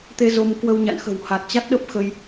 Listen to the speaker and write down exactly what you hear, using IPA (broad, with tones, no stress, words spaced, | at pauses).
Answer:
t̪e˧ zo˧mkwə˧wɲa̰˧˨nxə̤˨˩w ha˨˩t̚t͡ɕa˦˥t̚ɗə˦˥p̚xə˧j